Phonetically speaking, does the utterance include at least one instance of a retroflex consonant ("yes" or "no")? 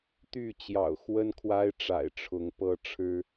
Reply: yes